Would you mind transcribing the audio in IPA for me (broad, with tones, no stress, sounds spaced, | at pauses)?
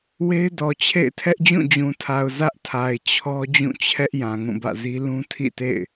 w e˦ ɪ̯ d ɔ˨ t͡ɕʰ ḛ˦˨ ɪ̯ tʰ ɛ˦ ʔ d͡ʑ ũ˦˨ d͡ʑ ũ˨ tʰ a˨ ʊ̯ z ä˦ ʔ tʰ a˨ ɪ̯ t͡ɕʰ ɔ˦ d͡ʑ ũ˦˨ t͡ɕʰ ɛ˦ ʔ j ã˨ ŋ ũ˦˨ b ä̰˦˨ z i˦ l ũ˦ tʰ ḭ˦˨ t ḛ˦˨ ɪ̯